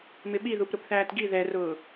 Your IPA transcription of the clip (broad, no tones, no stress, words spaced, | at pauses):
mɪɓiðup ɾʊpθæːtɡi ðɛrʊː